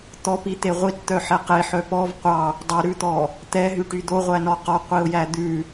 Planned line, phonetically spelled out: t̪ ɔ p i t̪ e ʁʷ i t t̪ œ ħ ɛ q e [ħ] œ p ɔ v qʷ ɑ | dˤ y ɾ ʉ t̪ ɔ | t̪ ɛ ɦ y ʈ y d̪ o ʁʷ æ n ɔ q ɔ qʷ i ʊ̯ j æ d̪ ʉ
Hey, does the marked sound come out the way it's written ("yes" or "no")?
yes